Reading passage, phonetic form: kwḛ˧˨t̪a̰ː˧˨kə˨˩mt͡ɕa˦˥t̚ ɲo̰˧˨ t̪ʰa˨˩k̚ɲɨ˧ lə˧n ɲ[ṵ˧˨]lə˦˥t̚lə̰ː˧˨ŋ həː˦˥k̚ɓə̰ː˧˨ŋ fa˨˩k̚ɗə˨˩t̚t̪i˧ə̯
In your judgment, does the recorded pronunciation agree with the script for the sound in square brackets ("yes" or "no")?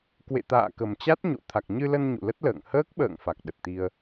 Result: yes